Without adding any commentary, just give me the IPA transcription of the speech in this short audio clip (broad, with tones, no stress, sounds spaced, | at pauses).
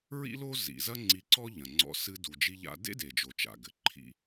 ɹ ḭ˥ l o˥ z ḭ˩ z ɐ˥ ŋ͡ǀ i˧ ǀ ɔ˥ ʎ ɐ̃˩ ŋ͡ǀ ɔ̰˧ s ɨ˧ d u˩ d͡ʒ i˧ ʎ a̰˧ d ḛ˥ d e˩ d͡ʒ o˩ t͡ʃ a̰˩ ɡ ɘ˩ ǃʰ ḭ˧